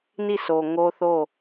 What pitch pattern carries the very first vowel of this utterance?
falling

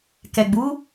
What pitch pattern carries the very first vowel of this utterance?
low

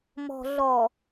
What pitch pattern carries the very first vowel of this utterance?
low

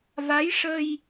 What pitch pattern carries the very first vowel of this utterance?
rising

